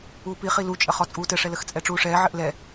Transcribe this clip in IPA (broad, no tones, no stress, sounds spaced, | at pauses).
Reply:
uː p i χ i l u t͡ʃʼ ə χ ɔ t͡sʼ uː t ɘ ʂ ɛ l ə x t͡sʼ ɛ ʈ͡ʂ uː ʂ ɛː ʕ ɘ ʔ l ɛ